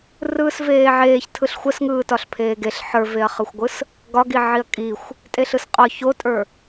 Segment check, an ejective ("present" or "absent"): present